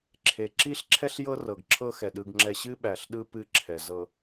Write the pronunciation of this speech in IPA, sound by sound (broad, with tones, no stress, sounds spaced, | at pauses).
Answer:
ǁʰ e˨ ǁ i˦ ɬ ǁʰ ɛ˦ ɬ j ɤ˦ r ɤ˨ ɡ ǁʰ ɤ˦ x ɛ˨ ɗ ɯ˦ ɡ ŋ͡ǁ ɛ˦ ɕ ɨ˦ ɓ æ˨ ɬ ɗ ɯ˦ p ɨ˦ ǁʰ ɛ˨ z ɤ˨